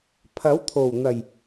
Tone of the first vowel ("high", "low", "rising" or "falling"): rising